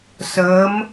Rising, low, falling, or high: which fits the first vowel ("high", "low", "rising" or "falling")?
rising